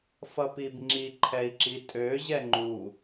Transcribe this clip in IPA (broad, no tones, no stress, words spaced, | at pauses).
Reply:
fʌpibŋ͡ǁi ǃʰɛi̯ǁitʼø ʑɛŋ͡ǃu